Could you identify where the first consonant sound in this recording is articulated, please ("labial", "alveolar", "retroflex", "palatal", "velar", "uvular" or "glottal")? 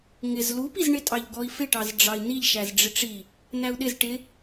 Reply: velar